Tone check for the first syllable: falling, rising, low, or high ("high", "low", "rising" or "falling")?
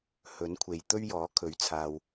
rising